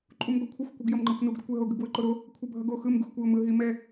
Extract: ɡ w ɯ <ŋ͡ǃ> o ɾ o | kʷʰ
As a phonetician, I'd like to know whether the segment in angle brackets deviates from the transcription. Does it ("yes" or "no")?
yes